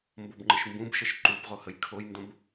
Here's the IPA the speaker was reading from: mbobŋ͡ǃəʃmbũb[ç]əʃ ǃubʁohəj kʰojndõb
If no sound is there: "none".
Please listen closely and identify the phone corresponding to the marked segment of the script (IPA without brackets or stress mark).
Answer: ʃ